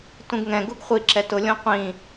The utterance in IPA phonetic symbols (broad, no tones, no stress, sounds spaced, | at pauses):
t ũ ɡ ŋ ɛ̃ ɡ u ɡ χʷ i ǁ ɛ t ʊ lʲ õ qʷ ĩ